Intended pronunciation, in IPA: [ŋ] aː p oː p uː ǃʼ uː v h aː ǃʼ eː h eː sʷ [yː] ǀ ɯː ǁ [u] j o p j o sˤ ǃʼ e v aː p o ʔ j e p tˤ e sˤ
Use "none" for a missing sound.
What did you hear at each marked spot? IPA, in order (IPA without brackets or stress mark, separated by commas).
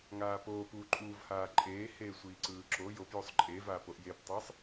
ŋ, iː, o